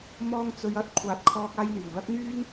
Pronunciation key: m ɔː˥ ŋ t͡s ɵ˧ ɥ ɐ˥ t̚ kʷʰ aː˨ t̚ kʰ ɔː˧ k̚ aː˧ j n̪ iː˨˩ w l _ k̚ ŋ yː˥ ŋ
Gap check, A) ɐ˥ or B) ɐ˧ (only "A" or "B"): A